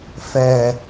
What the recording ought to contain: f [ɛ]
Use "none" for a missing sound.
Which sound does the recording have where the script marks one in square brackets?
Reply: ɛ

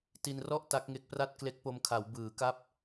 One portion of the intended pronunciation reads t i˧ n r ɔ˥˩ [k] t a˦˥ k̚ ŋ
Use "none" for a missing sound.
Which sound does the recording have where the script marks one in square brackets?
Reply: ʔ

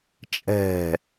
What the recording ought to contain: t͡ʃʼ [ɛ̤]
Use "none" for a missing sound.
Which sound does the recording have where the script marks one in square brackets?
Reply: ɛ̤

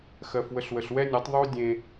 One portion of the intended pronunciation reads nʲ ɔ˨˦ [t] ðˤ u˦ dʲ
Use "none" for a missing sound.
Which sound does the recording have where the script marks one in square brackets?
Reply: tˤ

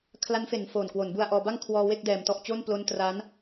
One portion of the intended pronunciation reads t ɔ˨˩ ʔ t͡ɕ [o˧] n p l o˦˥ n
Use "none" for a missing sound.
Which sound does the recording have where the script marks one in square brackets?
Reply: o˥˩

